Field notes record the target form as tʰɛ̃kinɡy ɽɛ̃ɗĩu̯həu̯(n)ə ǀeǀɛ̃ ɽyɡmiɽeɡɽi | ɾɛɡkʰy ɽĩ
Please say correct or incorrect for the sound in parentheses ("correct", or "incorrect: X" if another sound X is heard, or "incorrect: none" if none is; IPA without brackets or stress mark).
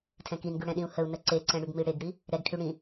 correct